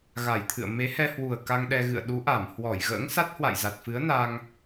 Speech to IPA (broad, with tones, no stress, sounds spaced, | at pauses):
ɣ a˧˩ j t̪ʰ ɨ̰˧˨ ə̯ m e˨˦ h ɛ˧ h w u˨˩ ə̯ k a˧ ŋ ɗ ɛ˧ ɣ ɨ̰˧˨ ə̯ ɗ u˨˦ ʔ a˧˩ m h w ɔ˧˩ j ɣ ə̰ː˧˥ ŋ s a˦˥ t̚ h w a̰˧˨ j z a˨˩ t̚ f ɨ˨˦ ə̯ n a˧ ŋ